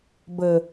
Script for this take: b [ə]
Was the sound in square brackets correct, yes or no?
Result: yes